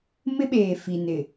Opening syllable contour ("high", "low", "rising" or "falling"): high